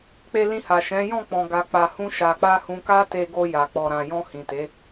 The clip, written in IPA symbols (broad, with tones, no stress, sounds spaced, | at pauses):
k͡p e˧ l ĩ˧ h a˨ ʃ ɛ̃˨˦ j ɔ̃˦˨ k͡p ɔ̃˨ ɡ a˨ k͡p a˨ h ũ˧ ʃ a˨ k͡p a˧ h ũ˧ k a˦ t e˧ ɡ o˧ j a˨ k͡p ɔ˨ ɾ ã˨ j ɔ̃˧ h ĩ˨ t e˨˦